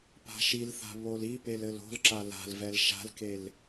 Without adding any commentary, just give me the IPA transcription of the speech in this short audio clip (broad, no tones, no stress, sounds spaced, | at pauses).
p a̤ ʃ i l θ a̤ β o l i p e l ɘ l o̤ l ǁ a l a̤ l v ɛ l ʃ a̤ l k e l